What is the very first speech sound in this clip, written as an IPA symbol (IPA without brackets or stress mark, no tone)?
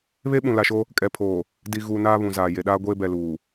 β